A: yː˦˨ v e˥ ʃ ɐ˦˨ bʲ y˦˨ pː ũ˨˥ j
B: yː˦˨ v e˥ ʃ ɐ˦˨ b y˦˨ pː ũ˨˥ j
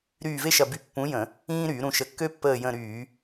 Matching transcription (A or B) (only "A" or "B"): B